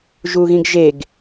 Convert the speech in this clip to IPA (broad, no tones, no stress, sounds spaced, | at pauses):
ʒ u ɣ ĩ ɡ ʒ e ɡ